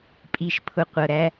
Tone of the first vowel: low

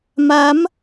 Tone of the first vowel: rising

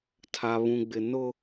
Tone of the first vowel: high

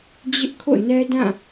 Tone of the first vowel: high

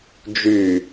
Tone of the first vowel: low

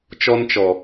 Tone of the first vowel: high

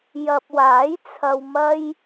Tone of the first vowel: low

